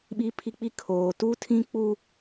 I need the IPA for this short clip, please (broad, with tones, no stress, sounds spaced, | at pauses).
ɓ i˦ pʰ i˦ k͡p i˦ kʰ oː˦ t u˦ tʰ ĩ˦ k͡p u˦